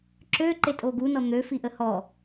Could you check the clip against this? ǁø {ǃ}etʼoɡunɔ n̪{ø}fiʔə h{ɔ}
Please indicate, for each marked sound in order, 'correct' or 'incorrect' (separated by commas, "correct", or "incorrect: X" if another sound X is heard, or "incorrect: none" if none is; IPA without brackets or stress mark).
correct, correct, correct